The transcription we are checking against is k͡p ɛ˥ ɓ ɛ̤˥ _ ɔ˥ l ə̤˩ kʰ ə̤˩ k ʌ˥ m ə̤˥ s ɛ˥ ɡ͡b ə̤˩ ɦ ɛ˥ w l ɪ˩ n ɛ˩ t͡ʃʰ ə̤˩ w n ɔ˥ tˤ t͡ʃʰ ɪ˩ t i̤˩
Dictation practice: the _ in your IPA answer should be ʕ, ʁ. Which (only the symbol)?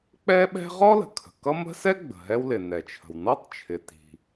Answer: ʁ